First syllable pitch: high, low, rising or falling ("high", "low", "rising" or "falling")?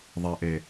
low